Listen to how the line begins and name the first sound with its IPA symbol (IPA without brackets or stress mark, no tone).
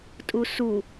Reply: tʼ